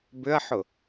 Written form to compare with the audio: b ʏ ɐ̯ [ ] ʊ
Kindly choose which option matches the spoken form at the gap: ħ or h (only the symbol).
ħ